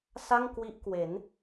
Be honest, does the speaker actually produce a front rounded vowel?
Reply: no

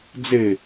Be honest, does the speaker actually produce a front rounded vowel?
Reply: no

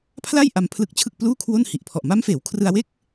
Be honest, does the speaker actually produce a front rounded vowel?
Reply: no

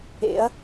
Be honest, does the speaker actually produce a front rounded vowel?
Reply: no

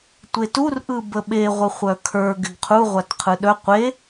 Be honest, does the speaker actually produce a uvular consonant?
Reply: yes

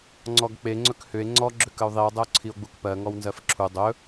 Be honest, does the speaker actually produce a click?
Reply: yes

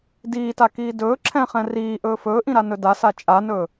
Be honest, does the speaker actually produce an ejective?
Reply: yes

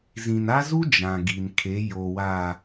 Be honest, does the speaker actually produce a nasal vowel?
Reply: yes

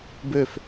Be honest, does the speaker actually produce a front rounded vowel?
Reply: yes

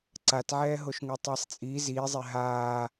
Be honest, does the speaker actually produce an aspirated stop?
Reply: no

